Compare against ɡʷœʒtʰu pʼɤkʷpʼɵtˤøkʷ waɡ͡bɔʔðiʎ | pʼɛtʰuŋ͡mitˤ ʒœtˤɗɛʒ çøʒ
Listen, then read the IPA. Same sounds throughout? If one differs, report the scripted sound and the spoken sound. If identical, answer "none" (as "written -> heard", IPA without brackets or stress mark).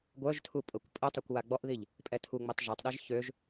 none